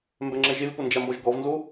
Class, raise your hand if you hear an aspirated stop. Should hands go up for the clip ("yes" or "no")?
no